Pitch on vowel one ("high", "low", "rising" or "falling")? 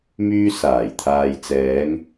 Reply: high